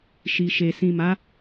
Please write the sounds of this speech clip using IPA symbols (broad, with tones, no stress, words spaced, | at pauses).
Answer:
ʃi˨ʃe˨ sĩ˨ma˨˦